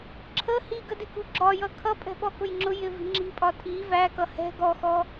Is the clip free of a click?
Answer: no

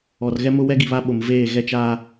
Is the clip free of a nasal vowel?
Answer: yes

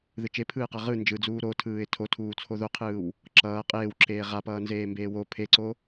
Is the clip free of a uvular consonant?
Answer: no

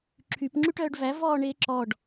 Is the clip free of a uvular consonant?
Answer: yes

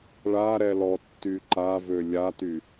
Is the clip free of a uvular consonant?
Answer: yes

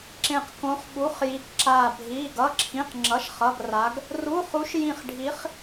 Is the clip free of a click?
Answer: no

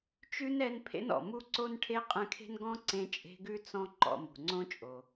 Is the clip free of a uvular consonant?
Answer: no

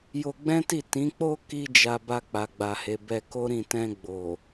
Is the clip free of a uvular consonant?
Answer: yes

